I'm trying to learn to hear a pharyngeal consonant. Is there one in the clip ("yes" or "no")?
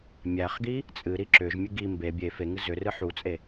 yes